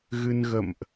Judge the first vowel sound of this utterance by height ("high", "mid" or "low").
high